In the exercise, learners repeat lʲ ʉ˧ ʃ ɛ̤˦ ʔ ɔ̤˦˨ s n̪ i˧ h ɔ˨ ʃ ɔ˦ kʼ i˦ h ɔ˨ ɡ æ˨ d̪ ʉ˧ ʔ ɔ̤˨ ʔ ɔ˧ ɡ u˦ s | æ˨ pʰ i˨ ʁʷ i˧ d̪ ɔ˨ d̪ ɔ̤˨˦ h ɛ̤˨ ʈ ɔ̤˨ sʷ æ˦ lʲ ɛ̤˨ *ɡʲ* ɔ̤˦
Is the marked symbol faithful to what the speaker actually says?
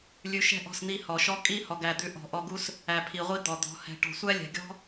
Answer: yes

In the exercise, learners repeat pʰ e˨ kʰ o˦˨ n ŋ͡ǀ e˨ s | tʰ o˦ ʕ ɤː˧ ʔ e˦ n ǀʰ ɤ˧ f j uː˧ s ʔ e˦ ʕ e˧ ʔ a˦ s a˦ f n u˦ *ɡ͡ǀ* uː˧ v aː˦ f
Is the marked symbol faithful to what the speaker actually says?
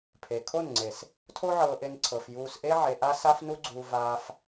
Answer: yes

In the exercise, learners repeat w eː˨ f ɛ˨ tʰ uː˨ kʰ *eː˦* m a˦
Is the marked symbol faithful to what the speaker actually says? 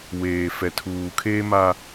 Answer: yes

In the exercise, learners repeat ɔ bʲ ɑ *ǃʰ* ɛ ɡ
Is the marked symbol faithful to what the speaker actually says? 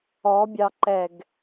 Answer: no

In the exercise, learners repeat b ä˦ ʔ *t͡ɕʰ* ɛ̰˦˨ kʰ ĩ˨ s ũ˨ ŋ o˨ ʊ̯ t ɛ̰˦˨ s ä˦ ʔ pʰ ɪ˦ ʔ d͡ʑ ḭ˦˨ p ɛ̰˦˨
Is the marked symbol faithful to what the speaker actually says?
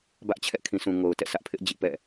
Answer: yes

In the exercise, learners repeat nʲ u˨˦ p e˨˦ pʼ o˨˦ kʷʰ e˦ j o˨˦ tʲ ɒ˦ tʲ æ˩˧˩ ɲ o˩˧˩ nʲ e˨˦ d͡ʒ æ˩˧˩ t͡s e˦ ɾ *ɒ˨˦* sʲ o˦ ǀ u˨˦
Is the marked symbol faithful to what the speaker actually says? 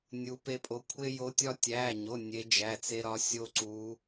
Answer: yes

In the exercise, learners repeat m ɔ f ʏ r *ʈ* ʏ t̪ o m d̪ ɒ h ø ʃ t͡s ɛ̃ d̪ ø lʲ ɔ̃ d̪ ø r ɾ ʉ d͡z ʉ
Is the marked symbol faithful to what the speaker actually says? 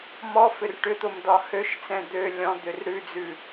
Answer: yes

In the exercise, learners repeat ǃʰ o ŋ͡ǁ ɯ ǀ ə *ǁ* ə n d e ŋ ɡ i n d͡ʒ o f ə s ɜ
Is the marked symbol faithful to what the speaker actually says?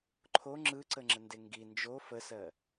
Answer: no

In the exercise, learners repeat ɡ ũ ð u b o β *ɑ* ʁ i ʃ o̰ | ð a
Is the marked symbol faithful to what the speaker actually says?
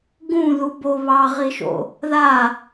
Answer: yes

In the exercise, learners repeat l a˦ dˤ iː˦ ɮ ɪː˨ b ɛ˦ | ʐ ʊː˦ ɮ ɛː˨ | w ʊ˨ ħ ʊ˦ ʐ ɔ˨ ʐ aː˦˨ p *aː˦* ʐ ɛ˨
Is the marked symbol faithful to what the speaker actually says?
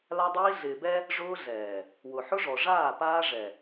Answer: yes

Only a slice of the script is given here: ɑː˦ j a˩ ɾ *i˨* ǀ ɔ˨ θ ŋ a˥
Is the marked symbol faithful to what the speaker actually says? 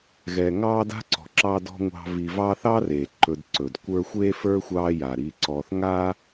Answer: yes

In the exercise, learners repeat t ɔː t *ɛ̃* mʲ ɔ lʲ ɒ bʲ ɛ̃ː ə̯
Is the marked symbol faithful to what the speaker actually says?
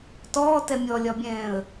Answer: no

